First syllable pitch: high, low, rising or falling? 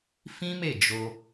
high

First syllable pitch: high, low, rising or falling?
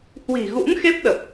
low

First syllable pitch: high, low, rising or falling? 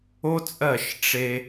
high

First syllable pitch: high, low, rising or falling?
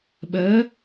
rising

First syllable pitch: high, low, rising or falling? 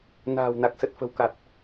low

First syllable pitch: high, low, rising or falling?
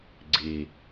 low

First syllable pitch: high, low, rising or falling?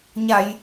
low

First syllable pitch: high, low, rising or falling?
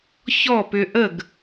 falling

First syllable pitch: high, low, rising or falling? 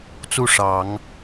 falling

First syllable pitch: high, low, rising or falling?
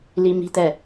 high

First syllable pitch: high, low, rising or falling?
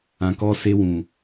low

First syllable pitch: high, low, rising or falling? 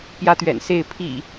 high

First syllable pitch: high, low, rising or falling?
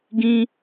high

